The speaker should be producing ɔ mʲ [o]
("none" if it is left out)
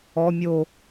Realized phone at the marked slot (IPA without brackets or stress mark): o